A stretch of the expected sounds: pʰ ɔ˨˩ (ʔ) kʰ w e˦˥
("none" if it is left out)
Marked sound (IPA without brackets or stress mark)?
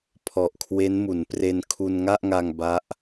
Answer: ʔ